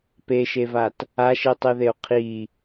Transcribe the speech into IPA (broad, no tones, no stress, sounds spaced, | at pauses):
p e ʃ e v a t | a ʃ i tˤ i ð e o̯ qʰ i